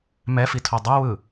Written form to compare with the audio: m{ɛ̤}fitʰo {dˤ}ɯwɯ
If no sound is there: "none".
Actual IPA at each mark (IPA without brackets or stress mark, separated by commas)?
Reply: ɛ, dˤ